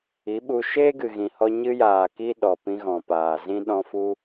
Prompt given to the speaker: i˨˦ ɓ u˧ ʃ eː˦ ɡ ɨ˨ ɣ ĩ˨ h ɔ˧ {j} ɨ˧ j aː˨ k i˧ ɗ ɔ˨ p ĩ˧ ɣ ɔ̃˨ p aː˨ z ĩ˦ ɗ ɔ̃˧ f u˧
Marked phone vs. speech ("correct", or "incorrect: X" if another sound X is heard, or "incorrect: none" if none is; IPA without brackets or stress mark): incorrect: ɲ